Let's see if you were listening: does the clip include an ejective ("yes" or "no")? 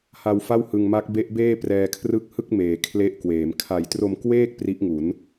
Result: no